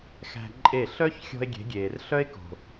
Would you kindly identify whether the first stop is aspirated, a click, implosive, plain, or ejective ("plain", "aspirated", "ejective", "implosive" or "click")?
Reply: click